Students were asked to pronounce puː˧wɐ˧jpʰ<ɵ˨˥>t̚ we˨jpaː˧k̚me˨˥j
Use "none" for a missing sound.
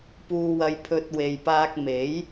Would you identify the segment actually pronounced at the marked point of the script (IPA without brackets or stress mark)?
ɵ˧